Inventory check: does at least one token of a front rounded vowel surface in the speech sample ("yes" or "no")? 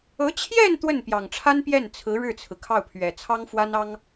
no